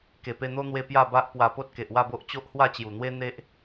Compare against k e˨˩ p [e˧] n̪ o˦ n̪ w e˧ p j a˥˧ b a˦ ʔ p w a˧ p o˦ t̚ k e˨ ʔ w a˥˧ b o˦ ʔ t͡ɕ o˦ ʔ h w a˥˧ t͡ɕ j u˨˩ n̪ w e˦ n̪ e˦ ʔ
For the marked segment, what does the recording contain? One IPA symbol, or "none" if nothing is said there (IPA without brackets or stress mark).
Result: e˧